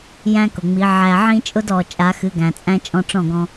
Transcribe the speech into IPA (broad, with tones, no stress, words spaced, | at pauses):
jæ̃˦kʊ˨ŋ͡mi˨˦ ʕæ˧ʕĩ˦t͡ʃʼʊ˦d ɔ˨ t͡ʃʼa˨˦xɨ˨˦ɡæ̃˨t͡sʼæ̃˦ t͡ʃʼɔ̃˧ʈ͡ʂɔ̃˦˨ɡɔ̃˧